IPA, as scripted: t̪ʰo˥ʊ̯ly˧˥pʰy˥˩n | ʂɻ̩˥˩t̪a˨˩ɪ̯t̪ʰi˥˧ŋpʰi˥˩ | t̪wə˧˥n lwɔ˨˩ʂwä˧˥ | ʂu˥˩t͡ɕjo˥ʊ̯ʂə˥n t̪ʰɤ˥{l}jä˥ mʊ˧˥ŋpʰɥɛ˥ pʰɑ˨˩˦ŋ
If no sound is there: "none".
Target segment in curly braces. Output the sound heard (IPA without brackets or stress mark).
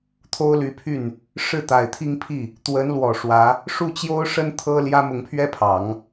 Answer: l